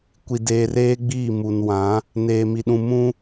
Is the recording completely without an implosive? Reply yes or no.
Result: no